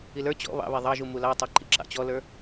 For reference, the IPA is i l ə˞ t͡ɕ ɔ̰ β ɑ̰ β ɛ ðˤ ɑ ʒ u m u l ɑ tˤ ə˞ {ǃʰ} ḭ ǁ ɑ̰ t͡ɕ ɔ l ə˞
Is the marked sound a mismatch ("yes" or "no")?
yes